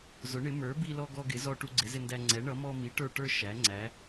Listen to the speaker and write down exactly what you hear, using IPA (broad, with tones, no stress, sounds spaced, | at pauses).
z ʊ˨˥ ɳ ɪ˨˥ m ə˞˨˥ b i˦ l ɔ˦ ɡ ɔ˦ ɡ ɪ˨˥ z ɔ˦ ʈ u˦ ɡ͡ǀ ɪ˨˥ z ɪ˦ n d æ˦ ŋ͡ǀ ɛ˨˥ ɳ ʌ˨˥ m ɔ˦ m i˨˥ ʈ ə˞˦ ʈ ə˞˦ ʃ æ˨˥ ŋ͡ǀ æ˨˥